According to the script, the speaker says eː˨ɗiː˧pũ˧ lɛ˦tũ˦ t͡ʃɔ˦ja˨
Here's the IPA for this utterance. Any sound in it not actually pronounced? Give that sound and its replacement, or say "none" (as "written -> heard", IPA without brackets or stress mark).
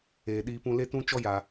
ɛ˦ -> e˦